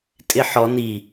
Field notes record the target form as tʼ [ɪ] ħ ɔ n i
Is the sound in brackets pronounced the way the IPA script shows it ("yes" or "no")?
yes